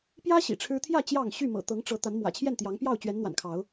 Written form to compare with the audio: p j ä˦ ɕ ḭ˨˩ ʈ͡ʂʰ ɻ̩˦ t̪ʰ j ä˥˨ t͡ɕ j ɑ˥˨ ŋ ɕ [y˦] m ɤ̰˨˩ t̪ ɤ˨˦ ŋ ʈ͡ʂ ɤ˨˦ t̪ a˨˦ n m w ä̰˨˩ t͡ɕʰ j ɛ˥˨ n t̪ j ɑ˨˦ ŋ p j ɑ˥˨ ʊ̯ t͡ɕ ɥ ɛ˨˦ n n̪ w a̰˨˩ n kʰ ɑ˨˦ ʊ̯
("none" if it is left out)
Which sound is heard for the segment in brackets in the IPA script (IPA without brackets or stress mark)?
y˥˨